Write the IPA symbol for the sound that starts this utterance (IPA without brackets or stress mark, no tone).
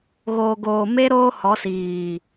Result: ɣ